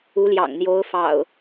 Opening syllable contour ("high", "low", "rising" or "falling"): rising